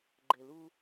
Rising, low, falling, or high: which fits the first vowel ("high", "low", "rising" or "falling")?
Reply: low